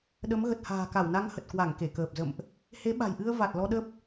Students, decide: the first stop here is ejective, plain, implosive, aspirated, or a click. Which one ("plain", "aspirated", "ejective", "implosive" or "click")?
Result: implosive